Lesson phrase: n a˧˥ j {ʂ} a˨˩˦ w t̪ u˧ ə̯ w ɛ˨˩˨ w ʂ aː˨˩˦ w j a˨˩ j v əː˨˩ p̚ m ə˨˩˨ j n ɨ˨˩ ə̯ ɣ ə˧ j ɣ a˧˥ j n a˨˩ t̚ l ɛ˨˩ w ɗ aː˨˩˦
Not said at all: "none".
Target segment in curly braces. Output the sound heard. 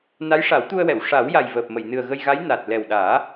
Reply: ʂ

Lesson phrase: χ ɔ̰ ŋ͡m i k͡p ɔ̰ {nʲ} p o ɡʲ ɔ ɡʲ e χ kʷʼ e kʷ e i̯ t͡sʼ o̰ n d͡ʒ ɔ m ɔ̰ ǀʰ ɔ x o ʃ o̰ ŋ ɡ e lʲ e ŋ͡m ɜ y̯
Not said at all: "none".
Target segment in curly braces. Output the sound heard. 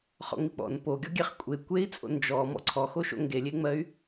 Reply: n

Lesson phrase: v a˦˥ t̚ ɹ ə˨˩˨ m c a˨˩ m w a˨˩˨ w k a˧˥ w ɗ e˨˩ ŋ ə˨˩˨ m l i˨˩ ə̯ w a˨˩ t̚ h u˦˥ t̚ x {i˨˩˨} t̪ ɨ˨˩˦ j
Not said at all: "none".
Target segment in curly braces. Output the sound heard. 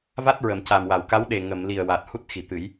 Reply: i˨˩˨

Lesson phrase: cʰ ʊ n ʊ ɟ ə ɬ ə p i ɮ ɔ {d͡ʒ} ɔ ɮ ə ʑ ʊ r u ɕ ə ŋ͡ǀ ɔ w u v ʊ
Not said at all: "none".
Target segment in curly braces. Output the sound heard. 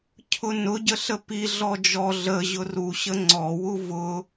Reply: d͡ʒ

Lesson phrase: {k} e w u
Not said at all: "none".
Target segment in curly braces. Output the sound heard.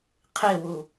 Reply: qʰ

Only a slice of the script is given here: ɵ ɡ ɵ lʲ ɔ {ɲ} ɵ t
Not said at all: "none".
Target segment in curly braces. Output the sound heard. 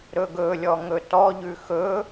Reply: ŋ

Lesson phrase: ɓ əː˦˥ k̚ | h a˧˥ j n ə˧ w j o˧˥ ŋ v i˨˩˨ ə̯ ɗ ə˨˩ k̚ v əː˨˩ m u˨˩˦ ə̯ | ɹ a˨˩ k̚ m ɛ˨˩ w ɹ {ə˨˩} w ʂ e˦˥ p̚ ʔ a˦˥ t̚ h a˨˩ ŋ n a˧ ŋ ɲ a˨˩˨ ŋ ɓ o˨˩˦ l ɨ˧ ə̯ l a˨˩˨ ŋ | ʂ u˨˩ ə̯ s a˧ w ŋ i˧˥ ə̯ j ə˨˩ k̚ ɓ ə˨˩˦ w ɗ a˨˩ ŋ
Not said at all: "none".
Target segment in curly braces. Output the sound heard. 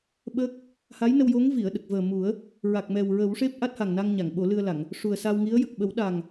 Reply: ə˨˩˦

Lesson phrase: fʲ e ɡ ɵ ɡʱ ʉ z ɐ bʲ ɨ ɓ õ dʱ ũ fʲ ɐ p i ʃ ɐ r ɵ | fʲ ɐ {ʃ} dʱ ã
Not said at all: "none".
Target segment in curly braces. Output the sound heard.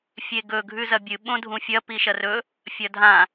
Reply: none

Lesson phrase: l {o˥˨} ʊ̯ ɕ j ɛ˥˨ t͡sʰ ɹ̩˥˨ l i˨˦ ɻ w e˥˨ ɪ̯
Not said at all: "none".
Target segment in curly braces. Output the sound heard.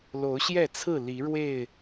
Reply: o˨˦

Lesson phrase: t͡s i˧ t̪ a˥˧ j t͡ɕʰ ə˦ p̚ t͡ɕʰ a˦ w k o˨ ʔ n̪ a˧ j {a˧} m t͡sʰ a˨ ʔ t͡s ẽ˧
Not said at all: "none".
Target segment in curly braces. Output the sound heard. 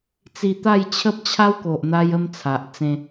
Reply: ə˧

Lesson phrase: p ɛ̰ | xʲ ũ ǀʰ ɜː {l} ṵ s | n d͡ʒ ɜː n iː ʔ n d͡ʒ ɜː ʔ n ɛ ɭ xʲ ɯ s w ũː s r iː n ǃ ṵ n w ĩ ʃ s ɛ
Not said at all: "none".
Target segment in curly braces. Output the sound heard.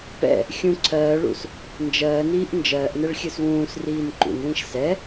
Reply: ɭ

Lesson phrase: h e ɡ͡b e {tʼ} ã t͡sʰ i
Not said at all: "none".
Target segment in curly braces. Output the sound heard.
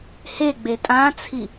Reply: tʼ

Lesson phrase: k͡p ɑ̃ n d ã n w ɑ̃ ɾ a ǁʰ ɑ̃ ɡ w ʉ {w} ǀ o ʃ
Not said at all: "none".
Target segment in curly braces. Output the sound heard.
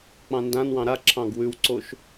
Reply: w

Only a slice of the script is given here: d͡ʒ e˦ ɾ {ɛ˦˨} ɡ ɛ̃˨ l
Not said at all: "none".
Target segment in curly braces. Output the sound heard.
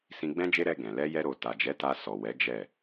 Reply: ɛ˧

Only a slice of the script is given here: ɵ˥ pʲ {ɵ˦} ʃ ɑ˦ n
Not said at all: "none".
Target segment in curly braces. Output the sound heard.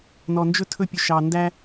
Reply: ɵ˦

